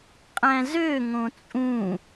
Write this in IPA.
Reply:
qʼ æ̃ z ø ŋ õ t͡sʼ ũ

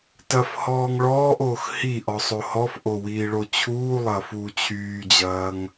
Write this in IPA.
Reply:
t ɐ f h ɔː ŋ ɭ ɔː ʔ oː x h i ʔ ɔ sˤ o h ɔ f ʔ o w iː ɭ o t͡ɕʰ uː lˠ ɐː f uː t͡ɕʰ yː d͡ʑ ɐː ŋ

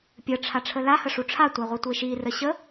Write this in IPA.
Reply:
pʲ ə ʈ͡ʂʰ a ʈ͡ʂʰ ə l a h ə ʂ u ʈ͡ʂʰ a tʷ a ʁʷ i tʷ e ʃ i r ə ɕ ə

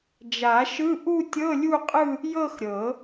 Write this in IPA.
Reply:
d͡ʒ a˨˩˦ ʃ ɯ˧˥˧ ʔ u˥˧ tʲ ɤ˧˥˧ lʲ u˥˧ qʼ ɯ˥˧ | j ɤ˥˧ x ɾʲ ɤ˨˩˦

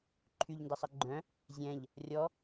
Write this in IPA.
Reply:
ǃʰ y ʎ n d ɐ sˤ ɐ ɡ͡ǃ œ̃ | zʲ ɛ̃ ʎ | rʲ ɔ

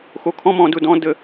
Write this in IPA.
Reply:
x o˧ kʰ ɔ̃˦ m ɔ̃˧ d ʊ˦ d ɔ̃˦ d ə˦

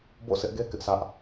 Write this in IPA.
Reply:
b o̰˦˨ s ɪ˦ ʔ ɡ e˦ k ɪ˦ ʔ sʰ ä˦ ʔ

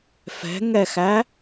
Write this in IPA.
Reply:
f ɛ̤ ŋ ɛ x æ

